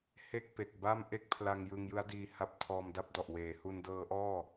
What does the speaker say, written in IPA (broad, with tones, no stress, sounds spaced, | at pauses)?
h e˥˩ k̚ p e˨˩ k̚ b a˥˩ m ʔ e˥˩ k̚ pʰ l a˧ ŋ j ɯ˧ ŋ j ɯ˦˥ a̯ d iː˧ h a˦˥ p̚ tʰ ɔː˧ m d a˥˩ p̚ d ɔ˨˩ ʔ w eː˩˦ h u˧ n d ɤː˦˥ ʔ ɔː˥˩